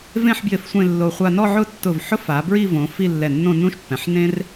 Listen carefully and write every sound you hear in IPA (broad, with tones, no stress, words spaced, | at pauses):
vẽ˥˧ħbjɪ˧f sʷẽ˥˧lːo˧ χʷa˧nɔ˥˧ʕʊ˥˧tːʊ˧˩v ħʊ˥fa˩˧bɹi˥˧võ˩˧ fi˥˧ lːɛ˧˩nːõ˥˧ nũ˥ʃpːɛ̃˩˧ħ nẽ˥r